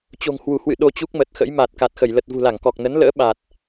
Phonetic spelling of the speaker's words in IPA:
t͡ɕ o̤˨˩ ŋ h w u˧˩ h w ɨ̰˧˨ ɗ o˧ t͡ɕ u˦˥ k̚ m ə˨˩ t̚ x ə̰˧˥ j m a˨˩ t̚ k a˨˩ t̚ x ə˧˩ j l ə˨˩ t̚ v ṳ˨˩ l a˧˩ ŋ k ɔ˨˩ k̚ n ə˨˦ n l ə̰ː˧˥ ɓ a˨˩ t̚

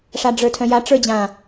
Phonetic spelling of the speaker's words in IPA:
ʂ a ɖ͡ʐ ə˞ tʰ œ̃ j a ʈ͡ʂ ə˞ d͡ʑ ã

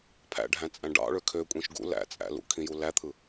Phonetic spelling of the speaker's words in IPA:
pʰ æ̰ ɖʱ æ̃ t͡sʼ æ̃ ɖ ɑ̰ ɭ ø kʰ ø kʷʼ ĩ ʃ ɡ ṵ l æ̰ t͡sʼ æ̰ l ṵ kʰ ĩ j u l æ t̪ʰ ɯ

